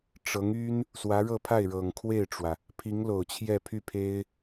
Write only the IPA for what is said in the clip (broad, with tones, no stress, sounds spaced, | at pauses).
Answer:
ʈ͡ʂ ɤ˧˥ ŋ y˥ n | s w ä˧˥ ɻ ɤ˥˧ pʰ a˥˩ ɪ̯ ɻ ɤ˨˩ ŋ kʰ w e˥˩ ɪ̯ ʈ͡ʂ w ä˩ | pʰ i˧˥ ŋ l o˨˩ ʊ̯ t͡ɕʰ j ɛ˥˧ pʰ y˥˩ pʰ e˥ ɪ̯